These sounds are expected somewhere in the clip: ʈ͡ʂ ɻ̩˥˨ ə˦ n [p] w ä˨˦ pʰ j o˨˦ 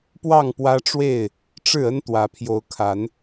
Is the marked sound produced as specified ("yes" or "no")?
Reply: no